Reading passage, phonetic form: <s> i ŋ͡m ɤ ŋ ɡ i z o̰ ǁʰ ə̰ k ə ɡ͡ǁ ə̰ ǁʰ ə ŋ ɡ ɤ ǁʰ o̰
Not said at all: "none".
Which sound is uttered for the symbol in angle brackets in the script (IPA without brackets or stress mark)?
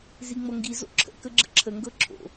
z